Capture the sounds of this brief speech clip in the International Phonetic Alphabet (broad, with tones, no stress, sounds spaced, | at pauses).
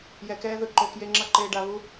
j ɛ˨ k ɛː˦ ð ɯ˨ ǃ o˨ k j e˦ ŋ͡ǁ ʌ˦ ǃ eː˨ ɖ a˨ β u˦